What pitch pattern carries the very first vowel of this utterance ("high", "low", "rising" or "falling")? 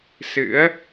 rising